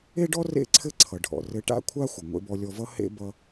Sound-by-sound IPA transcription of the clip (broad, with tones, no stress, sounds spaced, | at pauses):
e˥ ɖ ɔ˥ r ḛ˥ ǀʰ ɘ˥ ǀʰ ʌ˩ ɖʱ ɔ̰˩ r ɘ˧ ʈ a̰˥ kʷʰ a˥ xʷ ʌ˩ ŋʷ ḛ˧ b ɔ˧ lʲ ɔ˧ v ʌ˥ h ḛ˥ b ʌ˧